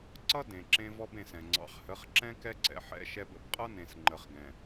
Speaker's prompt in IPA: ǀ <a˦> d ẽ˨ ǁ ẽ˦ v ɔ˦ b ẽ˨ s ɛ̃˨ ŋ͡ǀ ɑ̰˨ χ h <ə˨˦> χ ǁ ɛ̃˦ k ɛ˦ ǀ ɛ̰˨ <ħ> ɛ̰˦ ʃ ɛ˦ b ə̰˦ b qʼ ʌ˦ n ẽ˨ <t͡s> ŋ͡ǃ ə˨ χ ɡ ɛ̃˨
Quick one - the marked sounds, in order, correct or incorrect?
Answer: incorrect, correct, correct, incorrect

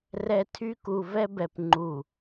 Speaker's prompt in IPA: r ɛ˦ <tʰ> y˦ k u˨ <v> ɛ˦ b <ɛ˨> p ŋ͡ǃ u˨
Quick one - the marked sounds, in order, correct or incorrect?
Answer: correct, correct, correct

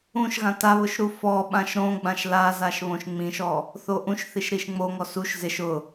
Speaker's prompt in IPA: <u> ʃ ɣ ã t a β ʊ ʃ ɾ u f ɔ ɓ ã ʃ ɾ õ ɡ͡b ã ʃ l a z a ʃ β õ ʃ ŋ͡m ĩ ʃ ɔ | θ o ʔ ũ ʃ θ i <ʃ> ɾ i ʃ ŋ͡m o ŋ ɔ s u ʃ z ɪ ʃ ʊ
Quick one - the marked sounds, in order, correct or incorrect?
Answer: incorrect, correct

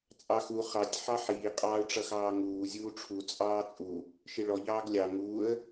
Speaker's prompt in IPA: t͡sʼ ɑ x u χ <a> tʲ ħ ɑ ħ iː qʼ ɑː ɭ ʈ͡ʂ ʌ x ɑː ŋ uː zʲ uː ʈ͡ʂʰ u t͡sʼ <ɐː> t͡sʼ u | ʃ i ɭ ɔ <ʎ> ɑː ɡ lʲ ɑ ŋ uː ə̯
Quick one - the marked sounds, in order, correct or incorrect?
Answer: incorrect, incorrect, correct

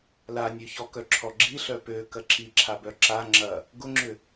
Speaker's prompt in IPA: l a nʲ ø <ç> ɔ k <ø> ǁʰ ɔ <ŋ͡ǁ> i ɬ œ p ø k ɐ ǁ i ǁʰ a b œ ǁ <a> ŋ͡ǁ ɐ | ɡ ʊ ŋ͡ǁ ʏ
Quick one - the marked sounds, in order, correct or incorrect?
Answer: correct, incorrect, incorrect, correct

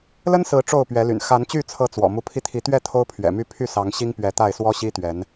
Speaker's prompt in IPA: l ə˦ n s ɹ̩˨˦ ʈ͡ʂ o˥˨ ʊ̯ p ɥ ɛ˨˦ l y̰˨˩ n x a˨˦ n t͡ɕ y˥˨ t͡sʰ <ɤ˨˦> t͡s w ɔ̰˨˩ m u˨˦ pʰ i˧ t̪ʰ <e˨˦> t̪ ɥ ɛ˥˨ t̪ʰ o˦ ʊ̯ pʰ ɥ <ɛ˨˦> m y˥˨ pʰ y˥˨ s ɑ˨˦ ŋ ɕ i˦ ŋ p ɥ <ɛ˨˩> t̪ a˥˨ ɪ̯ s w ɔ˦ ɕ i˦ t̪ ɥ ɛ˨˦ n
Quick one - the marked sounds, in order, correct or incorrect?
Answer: correct, incorrect, incorrect, incorrect

